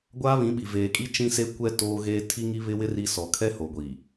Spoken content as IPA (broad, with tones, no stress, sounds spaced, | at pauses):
ɡʷ aː˦ β ĩ˨˦ ɓ i˨ v eː˨ kʼ i˦ t͡ʃ ĩ˦ s e˦ kʷ ɛ˦ t oː˦ ɣ eː˦ tʰ i˦ ŋ i˦ β ɪ˦ w ɪ˦ r i˦ s ɔ˨ kʰ ɛ˦ h o˨ ɡʷ iː˨